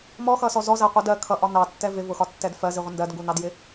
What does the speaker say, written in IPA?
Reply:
m ɔ x ʌ s ɔ z ɔ z æ qʷ ʌ d ɜ kʰ ʌ ʔ ɒ n ɑ tː ɛ v ɪ v ʊ x ɒ tː ɛ d f ɜ z i ʁʷ ɪ n d ɜ d ŋ ɡ u n ɑ d j ɪ

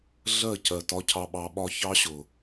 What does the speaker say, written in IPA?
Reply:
ɮ ɜ˦˨ c ɜ˨ t ɒ˦ cʰ ɑ˧ ɓ ɑ˨ ɓ ɒ˧ ç ɑ˦ ɕ ʊ˨

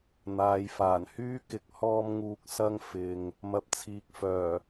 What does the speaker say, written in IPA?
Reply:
n̪ aː˨˧ j f aː˨˩ n h yː˥ k ɪ˨˥ k̚ h ɔː˧ m ŋ uː˨ k̚ s ɐ˧ ŋ f ɪ˨ ŋ | m ɐ˨ p̚ t͡sʰ iː˨ k̚ f œː˨˩

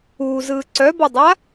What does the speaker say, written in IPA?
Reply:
uː z ɯː ǀ œ b ɔ dˤ a

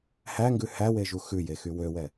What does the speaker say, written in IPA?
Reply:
h æ ŋ ɡ ʉ h æ w e ʒ u x ʉ j e x y w ø w ɛ

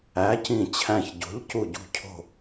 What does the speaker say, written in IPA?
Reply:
æ˨˥ c ĩ˧˩ t͡ɕʰ æ̃˧˩ ç ɟ o̤˨˥ ʎ c u˧˩ ɟ ṳ˧˩ cʰ o̤˧˩

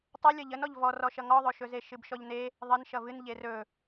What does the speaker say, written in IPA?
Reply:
tˤ ə lʲ ʌ ʎ ə n ɔ ʎ v ɔ r ɔ ʃ ʌ ŋ ɔ ðˤ ɵ ʃ ɵ z e ʃ ɨ b ʃ ɔ ʎ n e | ðˤ ə n ʃ ʌ v ɨ n ʎ e r ɵ

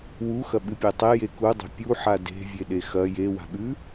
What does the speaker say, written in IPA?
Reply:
w u x ɐ ɓ ɨ pʲ e tˤ e j e k u dˤ e̤ pʲ u ħ a d e̤ vʲ e ɗ e x ɐ j e w a̤ ɓ ʉ

